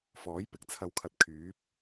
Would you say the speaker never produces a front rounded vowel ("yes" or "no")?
no